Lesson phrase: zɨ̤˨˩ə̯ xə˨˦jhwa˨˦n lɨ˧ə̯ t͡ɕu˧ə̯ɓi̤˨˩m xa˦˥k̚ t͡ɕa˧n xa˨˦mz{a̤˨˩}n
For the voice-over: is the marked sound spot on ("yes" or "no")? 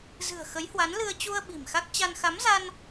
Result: no